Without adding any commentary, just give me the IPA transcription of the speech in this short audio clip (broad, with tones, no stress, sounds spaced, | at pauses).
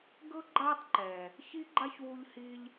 ɡ ɤ˦ ɡ͡ǃ a˦ tˤ ǃ ɛː˨ | ç i˦ ɡ͡ǃ a˦ ç w u˧ ʎ h iː˧ ʎ